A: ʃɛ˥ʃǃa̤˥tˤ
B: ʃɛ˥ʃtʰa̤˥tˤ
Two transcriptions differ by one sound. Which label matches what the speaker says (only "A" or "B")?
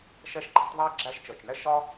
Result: A